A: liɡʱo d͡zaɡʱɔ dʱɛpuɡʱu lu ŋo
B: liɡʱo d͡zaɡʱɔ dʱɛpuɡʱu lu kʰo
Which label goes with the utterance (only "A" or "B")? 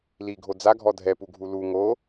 A